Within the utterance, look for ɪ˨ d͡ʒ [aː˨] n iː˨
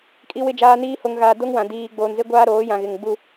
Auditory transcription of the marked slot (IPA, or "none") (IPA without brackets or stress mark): aː˨